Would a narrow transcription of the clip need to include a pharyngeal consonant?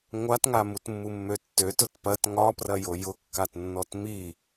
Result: no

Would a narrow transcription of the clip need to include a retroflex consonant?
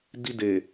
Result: no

